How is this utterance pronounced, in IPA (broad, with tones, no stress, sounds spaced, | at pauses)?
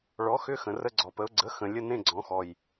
ɭ ɔ˩˥ x ʏ˧˥˧ x ə̃˨˩ r ə˧˥˧ ɡ͡ǀ ɔ˨˩ p ə˩˥ ʊ̯ ɡ͡ǀ ə˩˥ x ə̃˨˩ lʲ ə˧˥˧ n ẽ˧˥˧ ɡ͡ǀ ɔ̃˨˩˦ x ɔ˨˩ j